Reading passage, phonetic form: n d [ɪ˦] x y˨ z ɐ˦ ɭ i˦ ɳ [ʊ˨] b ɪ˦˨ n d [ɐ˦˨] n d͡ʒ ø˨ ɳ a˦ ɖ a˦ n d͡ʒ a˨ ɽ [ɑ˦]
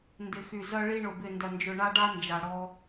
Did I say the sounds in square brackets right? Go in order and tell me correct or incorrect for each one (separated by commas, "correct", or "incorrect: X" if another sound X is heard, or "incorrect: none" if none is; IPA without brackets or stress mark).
incorrect: ɪ˨, correct, incorrect: ɐ˨, incorrect: ɔ˦